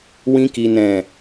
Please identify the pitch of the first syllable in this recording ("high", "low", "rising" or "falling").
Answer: high